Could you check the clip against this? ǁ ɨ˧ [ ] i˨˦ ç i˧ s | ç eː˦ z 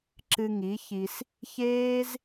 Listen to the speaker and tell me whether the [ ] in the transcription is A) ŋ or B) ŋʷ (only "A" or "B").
A